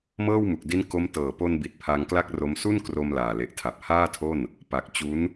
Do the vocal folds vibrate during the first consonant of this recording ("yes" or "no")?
yes